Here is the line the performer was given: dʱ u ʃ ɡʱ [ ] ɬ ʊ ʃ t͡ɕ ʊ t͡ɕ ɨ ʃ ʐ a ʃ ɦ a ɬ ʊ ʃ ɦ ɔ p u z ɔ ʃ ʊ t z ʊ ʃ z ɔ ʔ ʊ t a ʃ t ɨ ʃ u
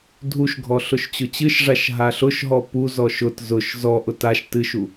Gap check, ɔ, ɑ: ɔ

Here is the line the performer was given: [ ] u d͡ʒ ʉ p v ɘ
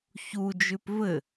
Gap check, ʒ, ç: ç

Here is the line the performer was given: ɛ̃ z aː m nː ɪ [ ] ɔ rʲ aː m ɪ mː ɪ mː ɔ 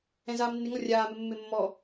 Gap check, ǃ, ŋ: ŋ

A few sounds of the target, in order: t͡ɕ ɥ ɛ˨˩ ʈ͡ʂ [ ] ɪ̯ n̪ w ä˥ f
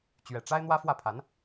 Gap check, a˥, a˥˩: a˥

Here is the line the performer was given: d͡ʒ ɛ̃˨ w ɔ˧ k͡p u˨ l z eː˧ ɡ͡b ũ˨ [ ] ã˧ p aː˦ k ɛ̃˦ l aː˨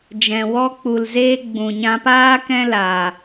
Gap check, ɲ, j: ɲ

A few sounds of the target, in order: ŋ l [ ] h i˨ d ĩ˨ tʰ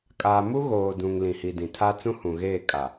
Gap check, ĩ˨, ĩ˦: ĩ˨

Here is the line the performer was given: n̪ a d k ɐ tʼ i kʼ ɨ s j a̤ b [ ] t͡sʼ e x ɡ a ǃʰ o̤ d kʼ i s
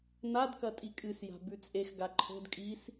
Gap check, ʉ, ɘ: ʉ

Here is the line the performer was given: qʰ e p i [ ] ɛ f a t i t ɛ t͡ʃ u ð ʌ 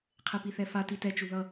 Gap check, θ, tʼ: θ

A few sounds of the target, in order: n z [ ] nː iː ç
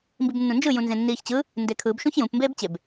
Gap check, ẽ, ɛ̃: ẽ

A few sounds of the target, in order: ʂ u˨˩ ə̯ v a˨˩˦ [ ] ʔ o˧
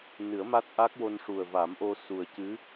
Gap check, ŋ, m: m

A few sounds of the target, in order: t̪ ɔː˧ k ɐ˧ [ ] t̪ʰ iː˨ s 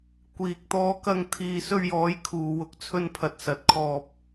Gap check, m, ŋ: ŋ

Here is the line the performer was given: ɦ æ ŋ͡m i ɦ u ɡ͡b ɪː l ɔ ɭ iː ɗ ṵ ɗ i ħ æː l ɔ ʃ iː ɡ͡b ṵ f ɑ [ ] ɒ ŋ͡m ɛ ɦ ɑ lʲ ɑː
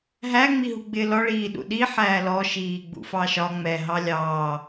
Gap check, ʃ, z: ʃ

